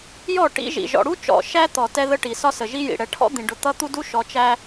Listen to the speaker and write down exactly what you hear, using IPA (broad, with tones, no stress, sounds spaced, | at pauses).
j ɔ˦˨ ʈ ḭ˦ ʒ ḭ˨ ʒ ɔ̰˨ ɽ u˦ t͡ʃ ɔ̰˨ ʃ æ˦ t̪ ɔ˨ t ɛ˦ ð ə˦ ʈ i˨ s ɒ˦ s ə˨ ʒ i˦ j ḭ˨ ɽ ɛ˨ ʈʰ ɔ̰˦ d̪ ĩ˨ ɖ ʊ˨ t̪ ʌ˦ t̪ u˦ d u˦ ʃ ɔ˨ t͡ʃ æ˦